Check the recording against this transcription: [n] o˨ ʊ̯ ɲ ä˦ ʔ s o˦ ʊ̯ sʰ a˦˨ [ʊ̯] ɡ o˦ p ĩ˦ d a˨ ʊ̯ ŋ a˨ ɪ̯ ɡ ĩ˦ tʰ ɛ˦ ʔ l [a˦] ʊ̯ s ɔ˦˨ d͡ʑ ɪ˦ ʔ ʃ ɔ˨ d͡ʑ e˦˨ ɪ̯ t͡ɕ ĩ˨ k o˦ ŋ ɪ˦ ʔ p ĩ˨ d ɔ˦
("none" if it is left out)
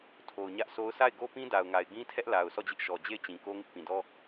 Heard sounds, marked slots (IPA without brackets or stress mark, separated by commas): tʰ, ɪ̯, a˨